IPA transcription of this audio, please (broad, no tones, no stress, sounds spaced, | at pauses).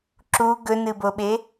ǁ u ɡ ɵ n ɨ b o ɓ e